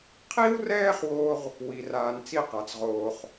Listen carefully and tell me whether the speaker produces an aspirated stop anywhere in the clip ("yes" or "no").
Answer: yes